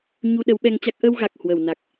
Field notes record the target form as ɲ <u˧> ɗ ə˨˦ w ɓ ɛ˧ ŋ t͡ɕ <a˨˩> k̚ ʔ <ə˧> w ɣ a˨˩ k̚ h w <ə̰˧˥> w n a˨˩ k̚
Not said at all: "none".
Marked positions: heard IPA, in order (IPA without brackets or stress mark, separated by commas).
u˧, a˦˥, ə˧, ə˧˩